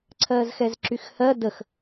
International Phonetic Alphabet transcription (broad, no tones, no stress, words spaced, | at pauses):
ǀʰɜzxɛzǁyxhɜ dəx